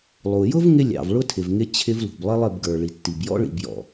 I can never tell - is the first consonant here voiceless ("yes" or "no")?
no